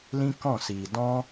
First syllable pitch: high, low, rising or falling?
high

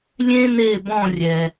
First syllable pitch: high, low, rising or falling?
high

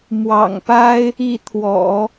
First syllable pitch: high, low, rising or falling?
low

